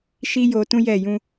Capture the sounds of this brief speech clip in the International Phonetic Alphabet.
ʃ i˦ j o˧ t ũ˦ j ɛ˦˨ j ũ˧

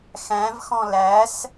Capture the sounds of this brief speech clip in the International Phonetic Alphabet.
x æ̃ v x ɔ̃ l æ s

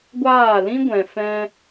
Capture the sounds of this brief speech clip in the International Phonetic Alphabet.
ɡʷ aː˦˨ l ĩ˦ ɡʷ ɛ̃˨ f ɛ̃˧

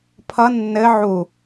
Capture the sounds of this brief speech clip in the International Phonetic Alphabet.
pʰ ʌ nː ɘ ʕ u

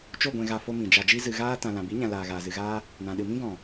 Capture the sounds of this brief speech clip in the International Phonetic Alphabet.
t͡ʃ o˦˨ ɡʷ ɛ̃˨ ɣ a˨ f o˧ m ĩ˨ d͡ʒ a˨ d͡ʒ i˧ z ɨ˨ ɣ aː˧ t ã˨ l ã˨ b i˨˦ ɲ ã˨ l aː˨ ɣ aː˨ z ɨ˨ ɣ aː˧ | n ã˨ ɗ ɨ˨ m ĩ˧ ɡ ɔ̃˨

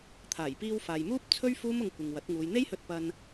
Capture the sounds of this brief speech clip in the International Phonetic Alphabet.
t̪ʰ aː˨˩ j p iː˧ w f aː˨ j m uː˥ p̚ t͡sʰ ɵ˥ ɥ f uː˥ m ʊ˧ ŋ kʷ ɪ˨ ŋ w ɐ˨˥ t̚ ŋ uː˨˧ j n̪ e˥ j h ɵ˧ t̚ p ɐ˧ n

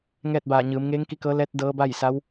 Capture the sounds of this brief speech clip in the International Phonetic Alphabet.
ŋ ɛː˥˨ t̚ b aː˧˩ ɲ ɯː˩˧ m ŋ eː˧˥ ŋ k i˧˥ k ɤː˧˥ l ɛː˧˥ t̚ d ɤː˧˥ b a˥˨ j s a˧˥ w

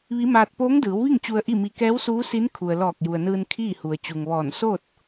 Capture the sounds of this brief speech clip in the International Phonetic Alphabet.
ʋ i˧˥ m aː˧ t̚ p oː˧˥ ŋ d ɯː˩˧ w ʋ i˥˨ ŋ t͡ɕ u˧ ə̯ ʔ i˥˨ m i˧ k ɛː˧˥ w s uː˧˥ s i˧˥ n kʰ u˩ ə̯ l ɔː˧˩ k̚ j u˩ ə̯ n ɯː˧ n kʰ iː˥˨ h u˩ ə̯ t͡ɕ u˩ ŋ ʋ ɔː˧˩ n s o˥˨ t̚

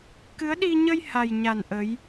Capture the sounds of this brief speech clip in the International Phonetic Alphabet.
k ɨ˨˦ ə̯ ɗ i˧ ɲ ə˧ j h a˨˩ j ɲ a˨˩ n ʔ ə˨˦ j

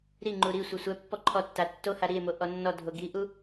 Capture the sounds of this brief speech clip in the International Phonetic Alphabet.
ɾ i ŋ͡ǃ u ɾ i sʷ ɘ sʷ ɛ pː ɔ ǃʰ ɔ tː a tː o h a ɾ i e̯ m o ʔ ɔ nː ɔ dʱ o ɡ i ʔ u

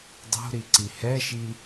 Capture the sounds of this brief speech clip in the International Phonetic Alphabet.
dˤ o̤ ɾ i ǀ i h ɛ ʃ i

